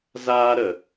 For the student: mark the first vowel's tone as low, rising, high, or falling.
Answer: high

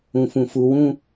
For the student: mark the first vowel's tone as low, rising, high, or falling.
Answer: low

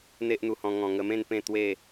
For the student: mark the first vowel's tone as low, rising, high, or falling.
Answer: high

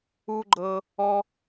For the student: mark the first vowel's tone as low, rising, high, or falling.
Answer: high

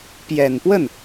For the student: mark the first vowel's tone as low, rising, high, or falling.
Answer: low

